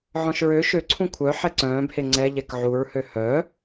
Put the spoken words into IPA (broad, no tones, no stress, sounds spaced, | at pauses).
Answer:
ʕ ɔ̃ ʃ ɹ ø ʃ ø ǀʰ ũ kʷʰ œ ħ ɛ ǀ œ̃ː b h e ŋ͡ǀ ɛ ʎ ɛ k ʕ u ɹ h ø h œ